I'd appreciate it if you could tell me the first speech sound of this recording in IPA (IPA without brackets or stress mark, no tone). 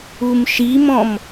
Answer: u